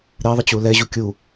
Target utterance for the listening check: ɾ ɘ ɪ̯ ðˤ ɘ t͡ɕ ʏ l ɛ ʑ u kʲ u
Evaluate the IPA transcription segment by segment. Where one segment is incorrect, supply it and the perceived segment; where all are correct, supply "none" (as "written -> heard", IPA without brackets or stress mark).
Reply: ʏ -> u